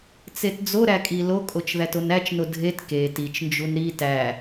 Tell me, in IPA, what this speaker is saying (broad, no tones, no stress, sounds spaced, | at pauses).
t͡s e t d͡z o ɾ æ kʼ i l o kʼ o t͡ʃ ð æ t o n æ t͡ʃ n o dʱ e t k e t i t͡ʃ n d͡ʒ u n ɾ i t æ